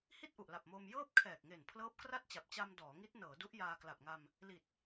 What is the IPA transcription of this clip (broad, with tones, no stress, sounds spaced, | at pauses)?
h i˥˩ t̚ ʔ u˨˩ ʔ l a˨˩ p̚ m oː˧ m j ɤː˥˩ p̚ kʰ ɛː˨˩ k̚ ŋ e˨˩ n pʰ l ɤː˦˥ p̚ k r a˥˩ t̚ t͡ɕ a˨˩ p̚ t͡ɕ a˧ m d ɔː˩˦ ŋ i˦˥ t̚ n ɤː˩˦ d u˦˥ ʔ j aː˧ k l a˨˩ p̚ ŋ a˧ m | l i˨˩ t̚